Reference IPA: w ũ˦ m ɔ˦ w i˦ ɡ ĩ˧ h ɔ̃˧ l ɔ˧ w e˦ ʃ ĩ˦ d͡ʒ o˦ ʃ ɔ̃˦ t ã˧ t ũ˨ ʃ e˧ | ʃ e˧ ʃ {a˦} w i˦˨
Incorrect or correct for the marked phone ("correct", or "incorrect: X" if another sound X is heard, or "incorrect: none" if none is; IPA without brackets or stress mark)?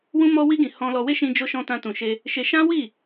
incorrect: ã˦